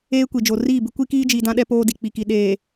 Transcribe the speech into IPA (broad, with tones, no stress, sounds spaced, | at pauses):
eː˦ kʷ i˨ d͡ʒ o˨ r iː˦˨ b ɪ˦ kʷ i˦ k iː˦ d͡ʒ iː˨ d ã˦ ɗ ɛ˦ p oː˦ d i˨ k͡p i˨ k i˨ ɗ eː˨